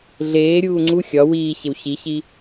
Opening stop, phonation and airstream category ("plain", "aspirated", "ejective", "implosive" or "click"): click